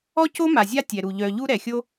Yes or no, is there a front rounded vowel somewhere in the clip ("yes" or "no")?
yes